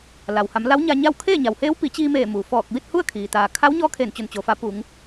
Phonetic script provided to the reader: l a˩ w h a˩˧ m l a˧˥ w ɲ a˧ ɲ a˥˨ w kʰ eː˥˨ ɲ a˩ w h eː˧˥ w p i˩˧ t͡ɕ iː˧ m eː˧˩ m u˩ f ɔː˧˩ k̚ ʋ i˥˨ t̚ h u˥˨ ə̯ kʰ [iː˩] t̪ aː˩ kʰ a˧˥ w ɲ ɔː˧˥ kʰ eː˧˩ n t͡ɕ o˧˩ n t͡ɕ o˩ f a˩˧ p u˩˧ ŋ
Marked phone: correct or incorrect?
correct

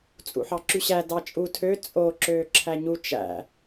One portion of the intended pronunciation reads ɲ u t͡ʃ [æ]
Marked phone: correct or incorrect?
incorrect: æ̰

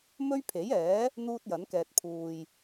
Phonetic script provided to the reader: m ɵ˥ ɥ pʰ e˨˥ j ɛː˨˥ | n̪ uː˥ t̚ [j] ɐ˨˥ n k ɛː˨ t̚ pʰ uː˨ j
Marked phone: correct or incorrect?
correct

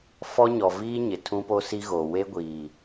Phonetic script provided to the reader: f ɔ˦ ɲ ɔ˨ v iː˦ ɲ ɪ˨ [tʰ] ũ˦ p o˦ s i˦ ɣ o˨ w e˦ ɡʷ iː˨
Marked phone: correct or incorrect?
correct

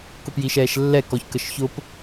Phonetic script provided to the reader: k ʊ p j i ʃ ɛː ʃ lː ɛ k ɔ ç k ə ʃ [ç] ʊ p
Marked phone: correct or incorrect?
correct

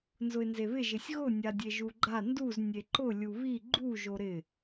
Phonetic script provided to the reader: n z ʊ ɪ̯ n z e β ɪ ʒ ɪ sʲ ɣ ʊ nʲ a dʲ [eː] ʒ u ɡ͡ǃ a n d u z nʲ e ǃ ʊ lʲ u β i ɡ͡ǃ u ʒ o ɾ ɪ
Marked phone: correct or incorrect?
incorrect: e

